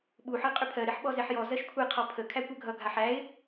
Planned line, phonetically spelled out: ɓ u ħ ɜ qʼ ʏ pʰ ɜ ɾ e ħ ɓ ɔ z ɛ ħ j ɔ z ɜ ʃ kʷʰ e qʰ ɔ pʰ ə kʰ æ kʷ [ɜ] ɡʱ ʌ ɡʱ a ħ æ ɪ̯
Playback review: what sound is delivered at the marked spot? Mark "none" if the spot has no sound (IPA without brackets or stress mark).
ɜ